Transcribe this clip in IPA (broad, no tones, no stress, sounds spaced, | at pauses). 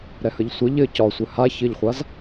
ɾ ɛ h ə ʎ sʷ ɘ ʎ ɘ c ɒ sʷ ɘ h a ç ɘ ʎ χʷ a z